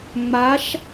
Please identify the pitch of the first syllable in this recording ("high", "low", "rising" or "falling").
rising